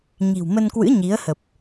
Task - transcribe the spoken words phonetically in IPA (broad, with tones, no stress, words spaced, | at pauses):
ɲi̤˨˩wmə˧nkwɨ̰˧˥ ɲi˨˦ə̯ hə˨˩p̚